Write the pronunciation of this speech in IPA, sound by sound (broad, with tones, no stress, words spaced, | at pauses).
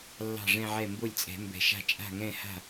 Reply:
lːɑ̤˥˩ʐɛ̃˥˧ʕɛ˥˩ mbo˥˩lʲt͡sʼɛ̤˨˩˦mbɛ̤˨˩˦ʃa̤˥˩ t͡ʃʼa̤˥˩ ŋɛ̃˥˩ha̤˥˩